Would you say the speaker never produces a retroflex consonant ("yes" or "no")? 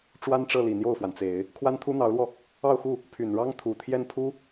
no